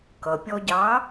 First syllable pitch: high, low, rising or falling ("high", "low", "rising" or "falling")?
low